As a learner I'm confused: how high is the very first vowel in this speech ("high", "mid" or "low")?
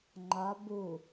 low